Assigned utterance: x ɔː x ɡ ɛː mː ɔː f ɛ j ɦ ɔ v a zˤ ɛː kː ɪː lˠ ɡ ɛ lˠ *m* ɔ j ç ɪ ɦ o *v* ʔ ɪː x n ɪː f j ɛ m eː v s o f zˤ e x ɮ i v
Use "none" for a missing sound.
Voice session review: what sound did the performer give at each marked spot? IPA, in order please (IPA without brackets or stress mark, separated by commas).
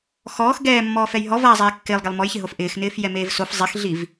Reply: m, f